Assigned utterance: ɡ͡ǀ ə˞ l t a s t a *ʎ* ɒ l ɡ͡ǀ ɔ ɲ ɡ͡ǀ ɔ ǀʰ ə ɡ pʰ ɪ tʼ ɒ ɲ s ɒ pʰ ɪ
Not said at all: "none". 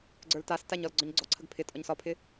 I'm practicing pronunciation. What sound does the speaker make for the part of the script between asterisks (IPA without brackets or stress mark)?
ɲ